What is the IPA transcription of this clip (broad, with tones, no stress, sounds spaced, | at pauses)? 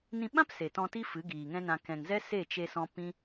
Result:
n ĩ˧ ɓ ã˦ p s e˨ t ɔ̃˧ t i˦ f ɨ˨˦ ɡ iː˨ ŋ ɛ̃˦ n ã˧ k ɛ̃˨ ŋ z ɛ˦ s e˦˨ t͡ʃ e˧ s ɔ̃˧ p ĩ˦